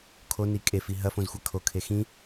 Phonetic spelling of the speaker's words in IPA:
kʰ o n i kʼ e f i ɦ ɐ f õ z xʷ ɐ kʰ o kʰ e x ĩ

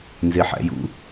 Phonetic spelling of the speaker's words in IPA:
n z e ħ æ̰ j ṵ

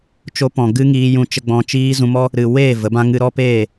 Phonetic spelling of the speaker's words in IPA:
t͡ʃ o˧ p ɔ̃˨ ɡ ɨ˦ ŋ iː˧ j ũ˧ t͡ʃ ə˧ ɡ͡b ɔ̃˧ t͡ʃ iː˦ z ũ˧ m ɔ˦ | ɾ ɨ˨ w eː˦˨ v ə˨˦ b ã˦ ŋ ɨ˧ ɾ ɔ˦ p eː˦˨

